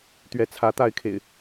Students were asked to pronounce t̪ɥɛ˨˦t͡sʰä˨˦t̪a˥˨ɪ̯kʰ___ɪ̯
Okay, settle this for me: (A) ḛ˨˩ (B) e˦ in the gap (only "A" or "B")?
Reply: A